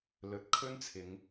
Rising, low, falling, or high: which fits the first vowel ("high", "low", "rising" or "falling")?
rising